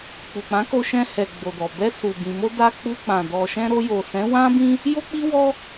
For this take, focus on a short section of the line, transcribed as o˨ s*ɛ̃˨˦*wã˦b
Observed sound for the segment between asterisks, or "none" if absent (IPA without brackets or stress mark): ɛ̃˨˦